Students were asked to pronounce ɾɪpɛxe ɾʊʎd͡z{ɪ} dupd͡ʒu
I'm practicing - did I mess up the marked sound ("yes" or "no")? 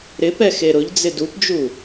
no